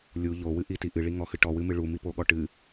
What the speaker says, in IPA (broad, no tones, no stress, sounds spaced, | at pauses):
lʲ u ʎ o w ɨ ʔ i t i ʔ ɨ ɭ i ŋ ɔ x ɨ ʈ ɔ w ɨ m ɨ ɭ u m i p o ɠ ɔ ʈ ɨ